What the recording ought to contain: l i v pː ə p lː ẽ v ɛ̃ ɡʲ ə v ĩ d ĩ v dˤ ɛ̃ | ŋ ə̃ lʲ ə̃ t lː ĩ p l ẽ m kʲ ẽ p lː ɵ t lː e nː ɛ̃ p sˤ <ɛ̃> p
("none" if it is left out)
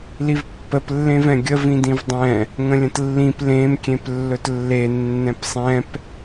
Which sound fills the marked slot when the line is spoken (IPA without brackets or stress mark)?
ɛ̃